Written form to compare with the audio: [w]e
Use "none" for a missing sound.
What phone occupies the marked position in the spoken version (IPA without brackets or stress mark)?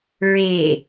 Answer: ɹ